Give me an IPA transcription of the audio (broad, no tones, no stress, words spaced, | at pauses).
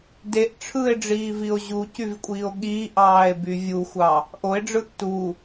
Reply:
deʔ ʈ͡ʂʰɯe̯ɖ͡ʐiːvio̯ ʑucyvkʷʼiːo̯ ɠiːʔɑːe̯by vʲuxʷɑ | ʔoe̯ɖ͡ʐɯʔ tu